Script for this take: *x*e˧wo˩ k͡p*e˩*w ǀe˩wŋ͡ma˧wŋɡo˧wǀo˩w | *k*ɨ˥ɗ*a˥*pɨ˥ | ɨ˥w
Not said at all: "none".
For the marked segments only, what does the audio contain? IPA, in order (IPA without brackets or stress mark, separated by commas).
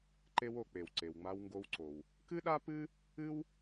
ǃ, e˩, k, a˥